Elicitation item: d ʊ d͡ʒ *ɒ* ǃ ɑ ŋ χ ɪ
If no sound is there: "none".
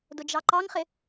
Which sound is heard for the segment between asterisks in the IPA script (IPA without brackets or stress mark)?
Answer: ɑ